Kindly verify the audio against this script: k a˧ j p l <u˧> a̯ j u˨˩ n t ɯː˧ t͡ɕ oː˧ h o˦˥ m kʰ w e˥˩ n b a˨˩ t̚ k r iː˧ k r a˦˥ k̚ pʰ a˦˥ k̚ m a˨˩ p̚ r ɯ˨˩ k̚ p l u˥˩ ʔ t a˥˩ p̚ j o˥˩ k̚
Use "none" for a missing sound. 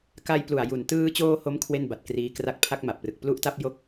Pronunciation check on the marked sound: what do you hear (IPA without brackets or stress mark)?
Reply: u˨˩